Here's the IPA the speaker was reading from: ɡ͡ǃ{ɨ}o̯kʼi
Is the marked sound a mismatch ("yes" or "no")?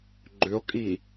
yes